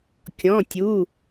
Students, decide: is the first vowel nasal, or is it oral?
nasal